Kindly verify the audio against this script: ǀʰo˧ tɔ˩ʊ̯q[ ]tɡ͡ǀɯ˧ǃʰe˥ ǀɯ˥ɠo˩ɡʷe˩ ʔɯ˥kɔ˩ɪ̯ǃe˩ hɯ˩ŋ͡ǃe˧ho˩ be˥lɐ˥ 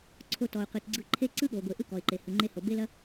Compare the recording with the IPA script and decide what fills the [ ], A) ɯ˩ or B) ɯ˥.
A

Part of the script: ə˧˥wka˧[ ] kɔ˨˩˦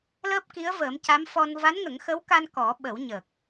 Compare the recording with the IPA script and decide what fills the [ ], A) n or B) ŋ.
A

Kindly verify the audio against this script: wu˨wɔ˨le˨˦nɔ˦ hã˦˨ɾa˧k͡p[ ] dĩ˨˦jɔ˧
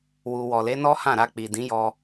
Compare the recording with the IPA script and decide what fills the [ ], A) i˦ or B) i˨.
B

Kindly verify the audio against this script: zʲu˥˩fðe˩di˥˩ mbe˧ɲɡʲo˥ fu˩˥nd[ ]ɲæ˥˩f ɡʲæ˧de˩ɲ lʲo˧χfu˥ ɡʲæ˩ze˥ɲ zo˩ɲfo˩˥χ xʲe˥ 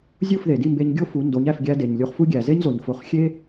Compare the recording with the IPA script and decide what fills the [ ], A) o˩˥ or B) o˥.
A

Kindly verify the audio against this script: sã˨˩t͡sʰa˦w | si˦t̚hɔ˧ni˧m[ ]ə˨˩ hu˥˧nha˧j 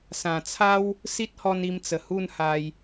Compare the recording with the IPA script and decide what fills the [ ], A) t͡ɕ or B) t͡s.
B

